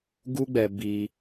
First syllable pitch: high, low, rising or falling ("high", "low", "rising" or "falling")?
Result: high